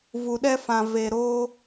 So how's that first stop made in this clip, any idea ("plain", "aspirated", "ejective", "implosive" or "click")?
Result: implosive